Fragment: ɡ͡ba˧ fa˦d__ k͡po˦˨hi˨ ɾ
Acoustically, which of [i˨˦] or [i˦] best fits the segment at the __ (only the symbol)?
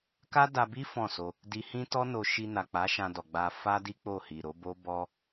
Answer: i˦